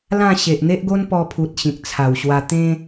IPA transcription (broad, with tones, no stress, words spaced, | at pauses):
lã˥˧ ɕe˨ʔn̪e˦ʔɡo˦n pɔ˧pʰu˨t̚ ɕĩ˨k̚t͡sʰa˨˩wɕwa˧ t̪ẽ˦